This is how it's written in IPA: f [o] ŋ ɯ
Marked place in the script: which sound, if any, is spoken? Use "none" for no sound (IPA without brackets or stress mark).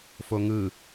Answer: o